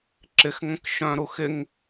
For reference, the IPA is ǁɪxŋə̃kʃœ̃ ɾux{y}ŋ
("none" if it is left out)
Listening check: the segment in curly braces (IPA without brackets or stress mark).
ɪ